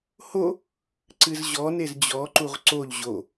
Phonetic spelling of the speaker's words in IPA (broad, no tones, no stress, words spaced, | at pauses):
ho | ǀɨzʑɔnez d͡ʑɔǃuʁ ǀoʎ ʑo